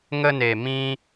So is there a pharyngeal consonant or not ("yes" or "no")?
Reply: no